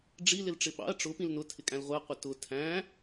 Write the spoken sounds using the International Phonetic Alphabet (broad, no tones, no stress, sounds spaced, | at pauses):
ɖ͡ʐ i l ɪ l ʈ͡ʂ ɪ ɓ ɑ̰ ɐ̯ ʈ͡ʂ ʊ p ĩ l n ʊ tʰ ɪ kʼ æ̃ l ʁʷ ɪ ɐ̯ qʷ ɪ t ʊ tʰ æ̃